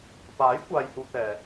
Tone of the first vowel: rising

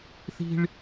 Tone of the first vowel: high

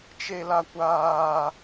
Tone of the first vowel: high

